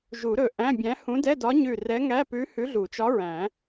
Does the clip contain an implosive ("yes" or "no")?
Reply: no